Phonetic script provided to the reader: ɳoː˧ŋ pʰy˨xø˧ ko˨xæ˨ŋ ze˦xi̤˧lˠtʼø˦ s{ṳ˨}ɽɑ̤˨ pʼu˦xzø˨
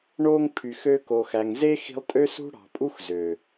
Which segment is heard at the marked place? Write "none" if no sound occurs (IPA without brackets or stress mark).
ṳ˦